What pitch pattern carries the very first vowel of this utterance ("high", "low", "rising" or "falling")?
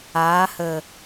rising